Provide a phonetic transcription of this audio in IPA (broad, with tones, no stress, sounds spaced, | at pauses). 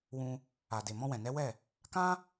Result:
w ũ˧ | a˨ d e˨ m ɔ̃˧ w ɛ̃˨ n ɛ˨˦ w ɛ˦˨ | k ã˦